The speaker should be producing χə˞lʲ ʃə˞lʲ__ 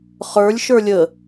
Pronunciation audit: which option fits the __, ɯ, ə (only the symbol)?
ə